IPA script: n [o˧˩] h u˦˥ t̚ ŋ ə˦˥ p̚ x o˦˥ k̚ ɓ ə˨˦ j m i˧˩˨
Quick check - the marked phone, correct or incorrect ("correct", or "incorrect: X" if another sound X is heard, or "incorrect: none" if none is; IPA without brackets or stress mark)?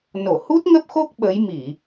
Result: correct